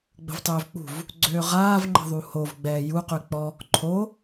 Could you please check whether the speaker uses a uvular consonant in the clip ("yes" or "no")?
yes